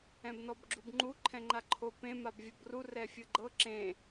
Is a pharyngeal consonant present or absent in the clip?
absent